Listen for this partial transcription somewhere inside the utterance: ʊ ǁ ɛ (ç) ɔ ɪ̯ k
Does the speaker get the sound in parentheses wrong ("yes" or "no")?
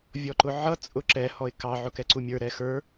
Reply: yes